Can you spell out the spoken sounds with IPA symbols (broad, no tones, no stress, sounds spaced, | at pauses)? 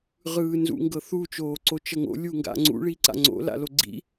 ʁ ɯː n z ṵ ŋ ɡ ɤ θ u t͡ʃ oː ǀ o t͡ʃ ɤ ŋ o̰ lʲ u ŋ ɡ a̰ ŋ͡ǀ ṵ ɭ i ǀ a̰ ŋ͡ǀ o̰ l a̰ l o ɡ͡ǀ ḭ